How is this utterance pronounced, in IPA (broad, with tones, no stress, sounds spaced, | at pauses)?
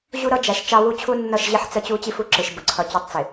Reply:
ʑ u˦ ɾ ʌ˦ d͡ʒ æ˨ ʃ t͡ʃ ɑ˦ w u˦ t͡ɕʰ u˦ nː ʌ˦˨ ʃ ʑ ɪ˦ ħ t͡s ə˦ t͡ɕ u˦ t͡ɕ i˦ f u˨ ǁ ɪ˨ ʃ b ʊ˨ ǀʰ ʌ˨ t͡ɕ ʌ˦˨ tˤ t͡s ɪ˨